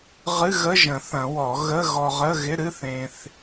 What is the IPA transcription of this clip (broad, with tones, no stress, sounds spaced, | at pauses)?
ʁ ɨ˧˥˧ ɣ ə˧˥˧ ʒ ə̃˨˩˦ θ ɐ̃˨˩˦ w ɔ˨˩˦ ɣ ə˧˥˧ ɣ ɔ˧ ʁ ə˧˥˧ ɣ ɪ˧˥˧ ɾ ɨ˧˥˧ θ ẽ˧ θ